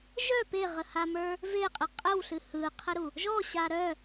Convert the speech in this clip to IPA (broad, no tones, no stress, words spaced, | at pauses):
ʒœ peʁəhamə˞ | veqʼə qʼəwɬɨ hɯqʰəɾu | ʒɔɕa ɾœ